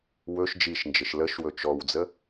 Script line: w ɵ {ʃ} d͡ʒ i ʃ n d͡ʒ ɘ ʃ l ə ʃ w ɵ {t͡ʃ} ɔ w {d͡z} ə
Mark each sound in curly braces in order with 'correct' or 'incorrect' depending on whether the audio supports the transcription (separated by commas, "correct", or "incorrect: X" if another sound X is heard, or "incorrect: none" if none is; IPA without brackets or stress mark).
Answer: correct, correct, correct